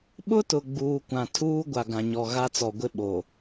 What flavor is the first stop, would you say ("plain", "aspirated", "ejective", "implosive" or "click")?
implosive